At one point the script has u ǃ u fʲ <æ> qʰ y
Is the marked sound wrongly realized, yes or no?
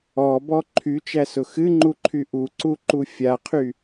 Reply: yes